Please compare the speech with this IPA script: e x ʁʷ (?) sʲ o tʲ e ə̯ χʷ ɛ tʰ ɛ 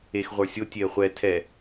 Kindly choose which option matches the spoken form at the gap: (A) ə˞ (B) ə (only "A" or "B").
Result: A